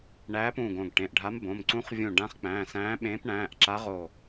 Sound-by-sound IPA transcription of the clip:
ɳæː˧˥pũː˧˩ɡõ˧˩ɡ ʈẽ˩˧˩ʔɖʱa˧˥mbõ˩˧˩m ǀũ˧˥χvʲũ˧˩ ɖã˧˥χk͡pæ̃ː˩˧˩sæ̃ː˧˥ɓẽː˧˥p ɳæ̃ː˩˧˩ʔǁa˧˥ʁo˧˩

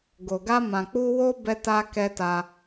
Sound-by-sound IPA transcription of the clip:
ɡo˨ɡa˧mã˨k͡pu˧ wo˦ bɛ˧ta˧ kɛ˧ta˧

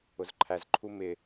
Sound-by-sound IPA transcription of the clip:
ʊzǃʰæz ǃʰumɪ

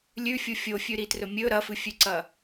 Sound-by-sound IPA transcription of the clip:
lʲʉfʲu fʲofʲʉɾitrɵ mʲɵ ɾɐfɨfʲʉǀɐ

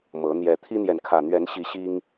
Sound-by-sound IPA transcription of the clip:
mɤ˨˦ n̪jɛ˨˩t̪ʰi˦n̪jɛ˨n kʰä˨˩n̪ɥɛ˨˦nɕi˨˦ ɕi˦ŋ

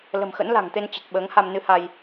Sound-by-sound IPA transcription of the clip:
lə̤˨˩mxə̰˧˥nla̤˨˩ŋt̪e˧n t͡ɕə˨˩t̚ ɓəː˨˦ŋha˧m nɨ˧ha˧j

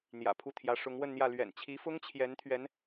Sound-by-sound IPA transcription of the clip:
n̪jä̰˨˩pʰu˥˩t̪ʰjä˧˥ ʂʊ˧˥ŋwə˥˧nn̪jä˥˩ lɥɛ̰˨˩nt͡ɕʰi˧˥ fʊ˥ŋt͡ɕʰjɛ˧˥n t̪ʰɥɛ˧˥n

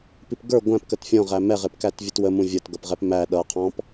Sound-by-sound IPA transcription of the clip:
pipɡə˞ ɡʷæ̃p kətfʲɔ̃ʁæ mɛʁɪpkæt vʲətwə mũvʲʌtɡʌpʁɛp mæ ɗʌqʰɔ̃p

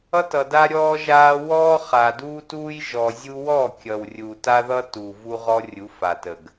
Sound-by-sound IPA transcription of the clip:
ʌ˦tʌ˨da˦ ɾʲɔː˦ʒaː˦ wɔː˦χa˨duː˦tuː˦j ʒɔ˨zʲu˦ wɔ˦˨kʲʌ˨wrʲu˨ ta˦ðʌ˦tuː˨ vu˦ʁɔ˦rʲu˨˦ fa˨tə˨ɡ

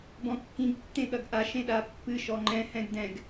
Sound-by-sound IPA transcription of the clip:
bɔ̃kːĩɡ tːẽɠɐɡʔa ʃẽɗapːɨ ʃɔŋ͡ǃɛ̃ hɛ̃ɡdɛ̃ɡ

